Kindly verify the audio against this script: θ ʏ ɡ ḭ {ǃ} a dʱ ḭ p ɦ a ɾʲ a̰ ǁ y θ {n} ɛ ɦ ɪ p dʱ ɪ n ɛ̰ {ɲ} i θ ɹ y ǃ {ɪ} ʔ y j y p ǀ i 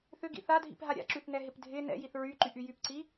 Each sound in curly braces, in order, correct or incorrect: incorrect: θ, correct, incorrect: j, incorrect: y

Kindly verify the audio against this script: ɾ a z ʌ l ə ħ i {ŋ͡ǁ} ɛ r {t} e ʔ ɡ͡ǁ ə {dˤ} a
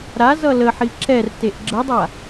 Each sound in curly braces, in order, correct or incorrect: incorrect: ǁ, correct, correct

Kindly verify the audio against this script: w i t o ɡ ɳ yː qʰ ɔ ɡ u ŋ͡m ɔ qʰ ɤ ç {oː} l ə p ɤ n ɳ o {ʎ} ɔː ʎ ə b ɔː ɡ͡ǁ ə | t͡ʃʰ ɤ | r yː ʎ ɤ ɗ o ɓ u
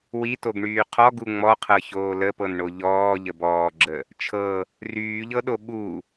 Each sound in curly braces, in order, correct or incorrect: correct, correct

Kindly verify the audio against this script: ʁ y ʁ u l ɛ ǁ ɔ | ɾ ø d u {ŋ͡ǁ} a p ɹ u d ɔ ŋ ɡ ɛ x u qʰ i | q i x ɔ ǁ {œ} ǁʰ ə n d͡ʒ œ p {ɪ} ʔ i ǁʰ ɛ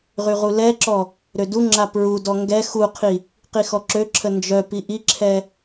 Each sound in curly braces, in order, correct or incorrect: correct, incorrect: ø, incorrect: i

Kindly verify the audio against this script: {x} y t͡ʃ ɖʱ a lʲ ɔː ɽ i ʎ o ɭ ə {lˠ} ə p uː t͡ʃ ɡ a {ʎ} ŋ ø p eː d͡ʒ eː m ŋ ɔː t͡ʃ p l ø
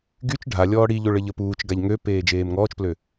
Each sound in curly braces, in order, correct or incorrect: incorrect: ɡ, incorrect: ʎ, correct

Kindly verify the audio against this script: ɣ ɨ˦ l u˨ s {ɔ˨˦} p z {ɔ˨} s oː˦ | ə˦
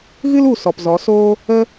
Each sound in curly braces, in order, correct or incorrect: incorrect: ɔ˨, incorrect: ɔ˨˦

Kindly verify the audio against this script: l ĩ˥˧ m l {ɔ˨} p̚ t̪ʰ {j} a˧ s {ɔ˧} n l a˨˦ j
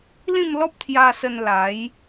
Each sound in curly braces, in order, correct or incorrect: incorrect: ɔ˦, correct, incorrect: ə˧

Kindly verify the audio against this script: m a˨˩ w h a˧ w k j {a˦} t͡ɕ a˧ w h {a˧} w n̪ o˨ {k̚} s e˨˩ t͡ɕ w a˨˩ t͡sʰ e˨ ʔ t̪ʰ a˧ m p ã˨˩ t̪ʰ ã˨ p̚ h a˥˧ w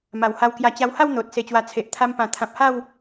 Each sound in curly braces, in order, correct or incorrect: incorrect: a˧, incorrect: a˥˧, incorrect: t̚

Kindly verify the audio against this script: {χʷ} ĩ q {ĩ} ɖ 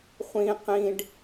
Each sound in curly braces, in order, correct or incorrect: correct, correct

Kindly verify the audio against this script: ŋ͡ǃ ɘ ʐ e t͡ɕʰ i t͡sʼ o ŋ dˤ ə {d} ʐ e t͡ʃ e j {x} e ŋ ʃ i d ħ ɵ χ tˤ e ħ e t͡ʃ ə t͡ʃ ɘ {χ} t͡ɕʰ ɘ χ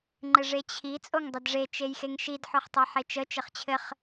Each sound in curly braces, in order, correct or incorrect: correct, correct, correct

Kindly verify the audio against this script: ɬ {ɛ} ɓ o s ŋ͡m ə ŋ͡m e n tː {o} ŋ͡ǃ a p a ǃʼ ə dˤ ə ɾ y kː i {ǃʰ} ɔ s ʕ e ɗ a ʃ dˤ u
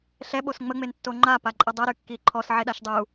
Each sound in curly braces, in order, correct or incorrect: correct, correct, correct

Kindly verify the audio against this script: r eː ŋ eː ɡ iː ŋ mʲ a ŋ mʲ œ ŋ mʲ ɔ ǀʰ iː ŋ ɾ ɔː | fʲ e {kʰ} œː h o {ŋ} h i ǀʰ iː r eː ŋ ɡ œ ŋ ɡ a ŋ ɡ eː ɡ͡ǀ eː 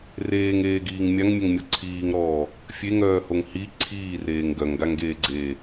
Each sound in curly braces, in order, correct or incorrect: incorrect: ŋ, correct

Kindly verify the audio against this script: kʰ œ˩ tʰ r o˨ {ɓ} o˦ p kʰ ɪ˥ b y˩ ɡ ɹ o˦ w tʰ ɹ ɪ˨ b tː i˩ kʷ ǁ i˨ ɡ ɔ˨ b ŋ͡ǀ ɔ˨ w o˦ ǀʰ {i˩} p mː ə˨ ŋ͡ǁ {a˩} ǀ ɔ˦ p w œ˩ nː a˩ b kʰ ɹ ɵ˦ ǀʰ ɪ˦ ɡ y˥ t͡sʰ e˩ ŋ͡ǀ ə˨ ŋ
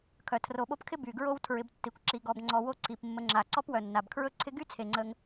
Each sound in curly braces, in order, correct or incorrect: correct, correct, correct

